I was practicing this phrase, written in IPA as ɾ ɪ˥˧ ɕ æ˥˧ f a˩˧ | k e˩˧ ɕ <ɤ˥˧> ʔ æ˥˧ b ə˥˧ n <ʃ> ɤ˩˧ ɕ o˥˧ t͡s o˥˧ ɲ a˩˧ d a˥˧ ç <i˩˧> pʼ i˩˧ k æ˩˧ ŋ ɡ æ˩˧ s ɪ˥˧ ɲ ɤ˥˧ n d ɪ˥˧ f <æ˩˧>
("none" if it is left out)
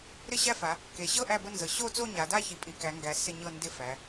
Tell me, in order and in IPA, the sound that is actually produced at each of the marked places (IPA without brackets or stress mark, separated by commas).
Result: ɤ˥˧, z, i˩˧, æ˩˧